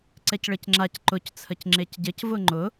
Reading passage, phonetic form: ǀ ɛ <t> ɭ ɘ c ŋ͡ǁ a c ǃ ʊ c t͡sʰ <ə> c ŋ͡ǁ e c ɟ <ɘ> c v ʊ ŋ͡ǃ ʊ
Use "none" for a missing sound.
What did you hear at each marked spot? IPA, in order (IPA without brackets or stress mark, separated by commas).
c, ə, ɘ